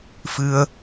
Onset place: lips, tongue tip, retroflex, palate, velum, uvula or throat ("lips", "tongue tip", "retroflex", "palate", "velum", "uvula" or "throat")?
lips